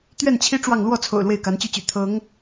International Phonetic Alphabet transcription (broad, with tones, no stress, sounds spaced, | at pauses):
t̪ ɥ ɛ˥˩ n t͡ɕʰ i˥ ʈ͡ʂ w ɑ˥˧ ŋ l w ɔ˥˩ t͡sʰ o̰˨˩ ʊ̯ l w e˥˩ ɪ̯ k a˧˥ n t͡ɕ y˥ t͡ɕ y̰˨˩ t̪ʰ ɤ˧˥ ŋ